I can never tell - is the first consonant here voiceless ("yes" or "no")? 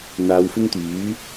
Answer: no